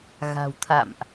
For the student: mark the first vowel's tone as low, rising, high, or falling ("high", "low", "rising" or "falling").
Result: low